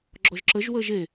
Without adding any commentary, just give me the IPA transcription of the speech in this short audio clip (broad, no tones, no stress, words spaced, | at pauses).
ɡ͡ǁɔʒǁəʒwəːʒ e